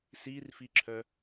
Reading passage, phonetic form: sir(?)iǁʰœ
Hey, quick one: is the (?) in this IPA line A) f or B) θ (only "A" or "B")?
A